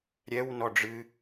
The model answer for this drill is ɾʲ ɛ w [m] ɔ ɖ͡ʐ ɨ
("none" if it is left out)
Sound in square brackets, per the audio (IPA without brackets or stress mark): n